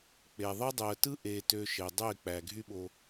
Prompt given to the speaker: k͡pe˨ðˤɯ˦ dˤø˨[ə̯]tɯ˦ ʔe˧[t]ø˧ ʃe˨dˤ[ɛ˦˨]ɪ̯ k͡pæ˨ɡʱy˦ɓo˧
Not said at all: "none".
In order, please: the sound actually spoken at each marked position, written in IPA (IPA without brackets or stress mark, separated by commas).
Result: ə̯, t, ø˦˨